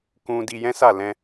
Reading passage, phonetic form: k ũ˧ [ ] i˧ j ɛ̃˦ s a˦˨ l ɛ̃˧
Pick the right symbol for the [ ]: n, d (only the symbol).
d